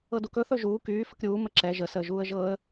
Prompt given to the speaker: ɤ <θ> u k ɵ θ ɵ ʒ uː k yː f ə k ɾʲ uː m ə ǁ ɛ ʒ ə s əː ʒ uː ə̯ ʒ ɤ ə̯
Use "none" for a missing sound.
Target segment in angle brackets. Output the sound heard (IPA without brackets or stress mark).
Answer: d